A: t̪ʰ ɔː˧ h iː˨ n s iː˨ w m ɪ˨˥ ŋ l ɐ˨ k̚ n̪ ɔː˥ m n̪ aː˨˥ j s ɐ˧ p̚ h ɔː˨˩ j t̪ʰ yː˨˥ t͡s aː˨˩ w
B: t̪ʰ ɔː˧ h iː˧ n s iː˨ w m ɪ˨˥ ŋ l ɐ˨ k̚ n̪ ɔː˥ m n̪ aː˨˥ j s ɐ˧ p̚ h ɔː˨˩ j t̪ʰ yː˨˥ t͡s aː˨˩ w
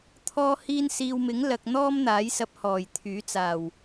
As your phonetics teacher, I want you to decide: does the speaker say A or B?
B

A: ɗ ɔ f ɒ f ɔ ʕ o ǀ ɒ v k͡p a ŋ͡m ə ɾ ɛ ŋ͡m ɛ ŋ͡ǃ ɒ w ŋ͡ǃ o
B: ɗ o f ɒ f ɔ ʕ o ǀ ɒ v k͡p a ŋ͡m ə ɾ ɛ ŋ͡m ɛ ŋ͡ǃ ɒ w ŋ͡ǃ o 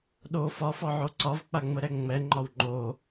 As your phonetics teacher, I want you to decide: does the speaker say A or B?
B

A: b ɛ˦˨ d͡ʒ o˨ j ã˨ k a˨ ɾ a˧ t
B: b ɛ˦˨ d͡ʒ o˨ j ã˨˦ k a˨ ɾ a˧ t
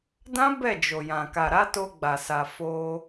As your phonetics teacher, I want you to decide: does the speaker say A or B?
A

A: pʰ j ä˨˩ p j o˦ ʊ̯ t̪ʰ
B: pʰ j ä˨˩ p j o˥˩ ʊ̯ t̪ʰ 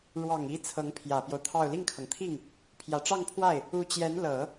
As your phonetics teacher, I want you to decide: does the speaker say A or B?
A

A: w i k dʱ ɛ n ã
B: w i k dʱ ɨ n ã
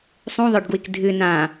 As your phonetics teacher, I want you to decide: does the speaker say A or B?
B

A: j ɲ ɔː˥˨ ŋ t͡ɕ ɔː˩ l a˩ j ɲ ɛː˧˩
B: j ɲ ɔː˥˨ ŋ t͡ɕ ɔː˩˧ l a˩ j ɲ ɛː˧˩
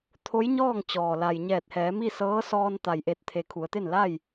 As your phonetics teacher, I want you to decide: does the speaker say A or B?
A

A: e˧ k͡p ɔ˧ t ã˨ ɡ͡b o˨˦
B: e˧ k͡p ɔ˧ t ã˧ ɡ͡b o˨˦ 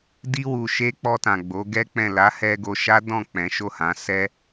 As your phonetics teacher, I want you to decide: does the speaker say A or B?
A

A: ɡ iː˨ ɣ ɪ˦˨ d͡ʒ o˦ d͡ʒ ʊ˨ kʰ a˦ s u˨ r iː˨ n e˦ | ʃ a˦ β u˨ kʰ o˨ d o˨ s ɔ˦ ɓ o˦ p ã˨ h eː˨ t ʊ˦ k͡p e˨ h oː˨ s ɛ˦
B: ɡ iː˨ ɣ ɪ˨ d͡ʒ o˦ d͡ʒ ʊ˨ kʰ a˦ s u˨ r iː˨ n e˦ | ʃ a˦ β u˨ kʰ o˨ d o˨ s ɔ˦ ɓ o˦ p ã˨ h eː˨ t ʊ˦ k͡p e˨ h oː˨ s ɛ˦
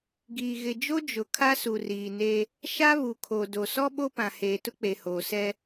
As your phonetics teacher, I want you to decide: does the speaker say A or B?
B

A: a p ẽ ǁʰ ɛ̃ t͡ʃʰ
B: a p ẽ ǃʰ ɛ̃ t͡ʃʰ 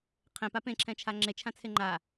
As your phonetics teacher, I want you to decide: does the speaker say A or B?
A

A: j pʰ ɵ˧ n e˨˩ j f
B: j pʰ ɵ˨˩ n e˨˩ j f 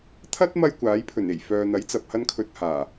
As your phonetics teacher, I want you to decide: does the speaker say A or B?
B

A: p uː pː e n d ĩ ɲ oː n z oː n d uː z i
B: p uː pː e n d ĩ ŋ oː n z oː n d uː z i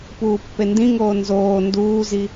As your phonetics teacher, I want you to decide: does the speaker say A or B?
B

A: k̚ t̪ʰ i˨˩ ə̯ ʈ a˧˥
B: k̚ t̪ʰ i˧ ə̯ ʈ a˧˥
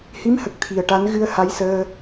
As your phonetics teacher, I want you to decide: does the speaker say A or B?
A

